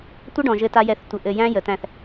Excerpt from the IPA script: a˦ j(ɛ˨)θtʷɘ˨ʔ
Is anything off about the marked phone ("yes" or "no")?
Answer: no